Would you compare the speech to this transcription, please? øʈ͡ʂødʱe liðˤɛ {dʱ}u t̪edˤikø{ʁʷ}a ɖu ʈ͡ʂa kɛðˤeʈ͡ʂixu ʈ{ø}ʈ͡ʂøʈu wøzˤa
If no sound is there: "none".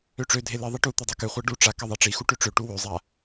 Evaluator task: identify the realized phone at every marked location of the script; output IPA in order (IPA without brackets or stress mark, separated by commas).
ʈ, χʷ, ø